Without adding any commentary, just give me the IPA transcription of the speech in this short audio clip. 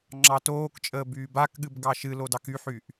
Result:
ŋ͡ǁɑtoːkt͡ʃʼəː byːbakɠɨb ɡɑʃɨlo dɑkyħyʔ

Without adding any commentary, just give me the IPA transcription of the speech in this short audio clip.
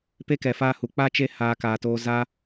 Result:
pe˦kɛ˨faː˧ hu˨k͡pa˦t͡ʃe˦haː˧ kaː˧toː˦ za˦

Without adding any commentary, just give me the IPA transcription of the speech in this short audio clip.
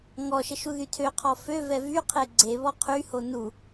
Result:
ŋɔʃəʃ uðytʰøqʰɔ føvɛ vyqʰe ɡ͡ǀeβɔ qʰyho nu

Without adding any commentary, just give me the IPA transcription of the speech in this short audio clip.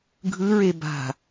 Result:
ɡʱɯɹe ba̤

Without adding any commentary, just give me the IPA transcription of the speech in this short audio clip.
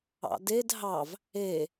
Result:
ɑ̰ded ɦɑv | e

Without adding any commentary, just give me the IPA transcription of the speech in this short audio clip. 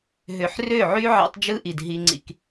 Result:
ɦø˨ħrø˦˨ʕy˦ ʕɑ̰˦tˤd͡ʒɯ˦ʔi˨d ɦi˦ŋ͡ǀḭ˦k

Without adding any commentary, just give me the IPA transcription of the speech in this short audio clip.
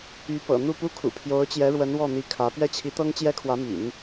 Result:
y˧˥ pɤ̰˨˩ n̪u˥˩pu˥kʰṵ˨˩ pʰjo˧˥ʊ̯t͡ɕjɛ˧˥ɻwə˧˥n wɔ˥˩n̪i˧˥ kʰä˧˥ pɥɛ˥˩t͡ɕʰi˧˥t̪ɤ˥ŋ t͡ɕjɛ˥kʰwä˧˥my̰˨˩˦n

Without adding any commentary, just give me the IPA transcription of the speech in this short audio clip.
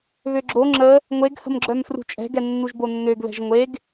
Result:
βøɡ͡ǁo ŋ͡ǁə | ŋʷeɡhə̤mɡ͡ǁœm frṳt͡ʃʼɛ̤ɡɛ nːuʒbonːøɡβɛ̤ʒ ŋʷeɡ

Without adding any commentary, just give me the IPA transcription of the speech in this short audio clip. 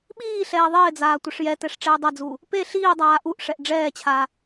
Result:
ɓiː ɬɛːðˤɪːd͡zaː tʷɪʂjɛtɛʂ ʈ͡ʂɛːdˤɛd͡zuː | pe ɬiːdˤaː ʔuʔʂɛʔ ɖ͡ʐɛːt͡ɕʰaː

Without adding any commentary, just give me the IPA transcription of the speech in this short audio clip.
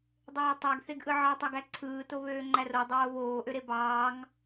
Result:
dˤøːtˤæɡθeɡʔɯ ʕɑtˤɑɡæ ǀʰɯːto βøːŋ͡ǃærodˤoː βoːʔøɾe bɑːŋ

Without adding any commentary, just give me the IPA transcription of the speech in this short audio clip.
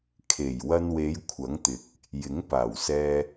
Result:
kʰe˨˩j wɐ˧nwe˨˧j kʷʰɐ˨˥ŋt̪ɪ˨˥k̚ | jɪ˨˥ŋpaː˨˩wsɛː˧

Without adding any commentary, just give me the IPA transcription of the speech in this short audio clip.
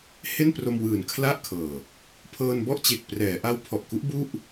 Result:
he˥˩npro˧mwɯː˨˩n kʰla˥˩ʔkʰɤː˨˩ | pʰɤː˧nbɔ˥˩ʔt͡ɕe˨˩k̚ prɛː˩˦ʔa˦˥wpʰɔ˨˩ʔku˦˥ʔ bu˥˩ʔ

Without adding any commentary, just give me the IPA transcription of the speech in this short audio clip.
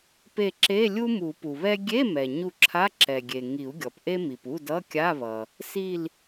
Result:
pe˧˩ ǁe˧˥˧lʲu˥ mu˨˩˦pu˩βɛ˥ ɡʲe˧˥˧mɛ˩ ɲu˧˩ǁʰa˧˥˧ ǁɛ˩ɡʲe˩ ŋi˨˩˦u̯ ɡʲɔ˩pʔe˥mi˩pu˧˥˧ dʌ˧˥˧kʲa˧˥˧βʌ˩ | si˧˩l

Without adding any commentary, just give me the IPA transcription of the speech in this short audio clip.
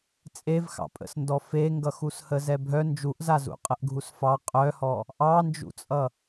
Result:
t͡sʼevxɑ̰pʼə̰sndɔ feŋɡʌxushə zɛbʱœ nd͡ʒuʔzazṵ qʼəʔɡʱusfɑ qʼœhɔ | ʔɑnd͡ʒṵt͡sʼʌ

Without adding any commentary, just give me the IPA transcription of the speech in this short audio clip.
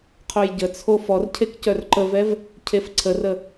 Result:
qʰojɟət͡sʰo fɔrcʰek cœrǃəvɛv | cʰefǀʰərə

